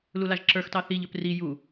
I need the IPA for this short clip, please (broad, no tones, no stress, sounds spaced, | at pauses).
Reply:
l u l a ʒ ǁ ə˞ x t ɑ θ i ʎ ɵ p r i j u